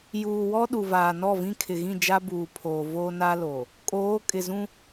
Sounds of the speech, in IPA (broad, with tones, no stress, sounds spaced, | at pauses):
j uː˨ w ɔ˦ ɗ u˨ v aː˨ n ɔ˦˨ v ĩ˦ kʰ ɪ˨ ɣ ĩ˦˨ d͡ʒ a˦ b uː˨ pʰ oː˨ v oː˦ n a˦ l oː˨ | kʼ oː˨˦ kʼ ɪ˨ z ũ˦